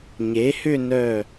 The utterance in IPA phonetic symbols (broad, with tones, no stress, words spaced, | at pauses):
ɲe˩˥hʏ˥˧nœ˧˩